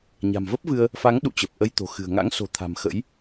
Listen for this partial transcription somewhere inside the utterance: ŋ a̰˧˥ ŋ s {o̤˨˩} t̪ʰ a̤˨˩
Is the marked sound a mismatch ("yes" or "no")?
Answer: no